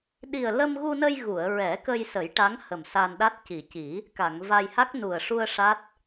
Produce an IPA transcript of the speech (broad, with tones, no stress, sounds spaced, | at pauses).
ɗ i˨˩ ə̯ l ə˧ m ɣ u˧ n ə˧ j ɣ u˨˩˨ ə̯ ɹ ɛ˨˩˦ k ə˧ j s ə˨˩˦ j ʈ a˧˥ ŋ h ə˨˩ m s a˧ n ɗ a˦˥ t̚ c i˨˩ c i˨˩˦ | k a˨˩˨ ŋ v a˧ j h a˦˥ k̚ n u˨˩ ə̯ ʂ u˧ ə̯ ʂ a˦˥ t̚